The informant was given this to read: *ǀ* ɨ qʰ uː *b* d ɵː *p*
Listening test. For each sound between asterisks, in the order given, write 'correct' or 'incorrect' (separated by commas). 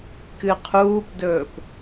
incorrect, incorrect, correct